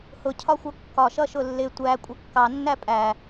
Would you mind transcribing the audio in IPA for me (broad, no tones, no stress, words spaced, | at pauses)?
hʊcʰɒxʷʌ kːɒʃʌʃʊ lːɪ tʷækʷʼʌ kːɑnːæ pʼæ